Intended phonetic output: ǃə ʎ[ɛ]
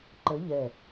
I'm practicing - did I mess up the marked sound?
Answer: no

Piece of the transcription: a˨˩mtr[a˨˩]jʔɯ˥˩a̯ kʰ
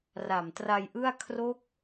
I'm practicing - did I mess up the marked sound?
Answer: yes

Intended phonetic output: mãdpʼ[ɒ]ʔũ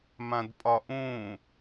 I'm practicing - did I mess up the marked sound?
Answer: no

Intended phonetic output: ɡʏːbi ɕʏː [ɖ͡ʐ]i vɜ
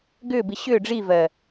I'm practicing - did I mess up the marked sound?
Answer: no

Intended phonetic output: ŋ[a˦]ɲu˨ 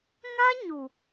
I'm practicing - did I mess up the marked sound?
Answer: no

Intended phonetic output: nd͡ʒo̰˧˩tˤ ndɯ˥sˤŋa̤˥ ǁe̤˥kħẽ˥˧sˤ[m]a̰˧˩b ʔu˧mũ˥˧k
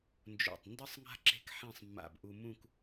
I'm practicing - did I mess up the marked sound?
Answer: yes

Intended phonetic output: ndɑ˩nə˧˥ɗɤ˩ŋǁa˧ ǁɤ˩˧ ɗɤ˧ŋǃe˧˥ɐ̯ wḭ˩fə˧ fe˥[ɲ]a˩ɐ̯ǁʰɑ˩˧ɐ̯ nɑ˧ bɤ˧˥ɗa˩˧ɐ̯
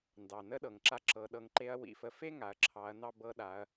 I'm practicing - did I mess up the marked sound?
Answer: yes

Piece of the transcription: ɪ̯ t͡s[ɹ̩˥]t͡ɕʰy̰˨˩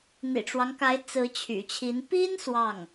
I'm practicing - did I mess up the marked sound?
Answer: yes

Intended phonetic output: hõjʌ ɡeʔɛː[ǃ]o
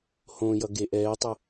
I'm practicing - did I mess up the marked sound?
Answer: yes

